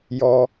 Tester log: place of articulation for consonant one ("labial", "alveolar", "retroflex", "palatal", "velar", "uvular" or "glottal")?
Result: palatal